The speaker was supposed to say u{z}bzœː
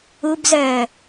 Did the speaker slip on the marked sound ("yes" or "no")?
yes